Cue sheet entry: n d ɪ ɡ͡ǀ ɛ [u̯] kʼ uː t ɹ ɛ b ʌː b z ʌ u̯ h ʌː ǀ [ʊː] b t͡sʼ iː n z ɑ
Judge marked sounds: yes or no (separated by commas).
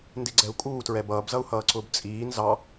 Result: yes, yes